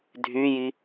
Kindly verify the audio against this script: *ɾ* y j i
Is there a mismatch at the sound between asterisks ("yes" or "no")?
yes